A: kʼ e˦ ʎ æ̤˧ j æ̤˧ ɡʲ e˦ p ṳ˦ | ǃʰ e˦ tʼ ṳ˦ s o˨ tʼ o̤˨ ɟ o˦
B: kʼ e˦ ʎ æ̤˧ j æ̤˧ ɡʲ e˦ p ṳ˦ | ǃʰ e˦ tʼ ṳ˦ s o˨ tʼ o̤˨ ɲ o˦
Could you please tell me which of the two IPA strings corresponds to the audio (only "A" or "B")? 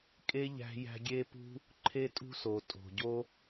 A